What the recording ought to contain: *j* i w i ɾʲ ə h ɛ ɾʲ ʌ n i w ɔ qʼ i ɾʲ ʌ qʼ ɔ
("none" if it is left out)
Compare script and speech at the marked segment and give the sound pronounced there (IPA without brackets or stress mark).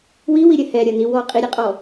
w